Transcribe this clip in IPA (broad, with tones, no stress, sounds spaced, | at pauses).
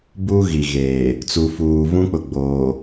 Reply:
b u˦ ɣ i˨ ɣ eː˨ | t͡s u˨ f uː˨ v ũ˦ k͡p ʊ˨ ɡ͡b oː˨